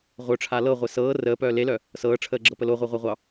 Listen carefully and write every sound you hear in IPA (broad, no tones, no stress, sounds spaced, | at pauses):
ʁʷ œ ʈ͡ʂʰ a l ɤ ʁʷ e s ɤː r əː p œː l e l œ | s ɤː ʈ͡ʂʰ əː ɡ͡ǁ ɤ p ə l o ʁʷ e ʁʷ a ʁʷ ɑ